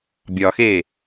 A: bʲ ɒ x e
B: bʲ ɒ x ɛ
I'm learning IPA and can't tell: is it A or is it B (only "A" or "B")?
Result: A